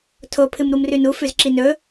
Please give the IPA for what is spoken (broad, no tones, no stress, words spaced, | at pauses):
tʰopʰɨm ɾumrʉnu fʉzǁinɵ